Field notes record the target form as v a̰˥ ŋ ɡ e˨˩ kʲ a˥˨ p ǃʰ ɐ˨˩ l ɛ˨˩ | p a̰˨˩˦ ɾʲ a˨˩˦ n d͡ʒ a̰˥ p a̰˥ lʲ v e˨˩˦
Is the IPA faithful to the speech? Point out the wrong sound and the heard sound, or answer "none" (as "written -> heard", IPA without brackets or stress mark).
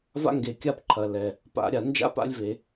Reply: none